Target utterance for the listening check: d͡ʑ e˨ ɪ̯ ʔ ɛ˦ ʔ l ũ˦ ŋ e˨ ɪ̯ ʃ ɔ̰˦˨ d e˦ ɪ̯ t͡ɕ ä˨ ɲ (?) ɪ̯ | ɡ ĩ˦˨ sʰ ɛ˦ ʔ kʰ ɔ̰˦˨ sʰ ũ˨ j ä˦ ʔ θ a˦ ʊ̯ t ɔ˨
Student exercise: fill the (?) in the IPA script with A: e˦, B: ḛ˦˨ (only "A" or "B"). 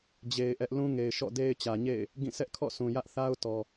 B